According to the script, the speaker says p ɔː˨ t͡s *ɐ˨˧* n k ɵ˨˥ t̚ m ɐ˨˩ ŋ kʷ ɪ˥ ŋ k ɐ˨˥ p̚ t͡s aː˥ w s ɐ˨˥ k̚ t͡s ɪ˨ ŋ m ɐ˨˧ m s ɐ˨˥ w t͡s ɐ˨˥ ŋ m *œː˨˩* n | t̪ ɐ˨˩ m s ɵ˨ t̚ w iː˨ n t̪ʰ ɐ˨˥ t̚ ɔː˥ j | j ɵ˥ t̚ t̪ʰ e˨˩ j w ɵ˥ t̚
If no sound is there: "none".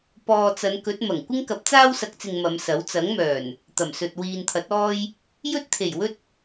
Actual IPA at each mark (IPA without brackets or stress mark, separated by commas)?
ɐ˨˧, œː˨˩